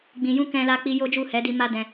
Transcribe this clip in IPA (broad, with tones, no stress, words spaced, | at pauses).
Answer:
ɡ͡bĩ˧ jũ˦ kɛ̃˧la˧k͡pi˧ jo˦d͡ʒu˦˨ hɛ˨˦di˧ma˦dɛ̃˧